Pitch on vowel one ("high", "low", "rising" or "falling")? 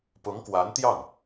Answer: rising